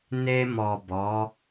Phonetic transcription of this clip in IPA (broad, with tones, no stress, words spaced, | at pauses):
ne˧mɔ˨ bɔ˨˦